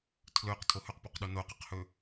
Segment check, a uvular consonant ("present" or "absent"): present